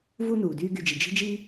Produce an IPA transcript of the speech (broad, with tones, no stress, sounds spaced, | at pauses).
v u˦ n uː˩ d yː˦ ɡ y˨ d͡ʒ i˩ d͡ʒ i̤˥ d͡ʒ iː˥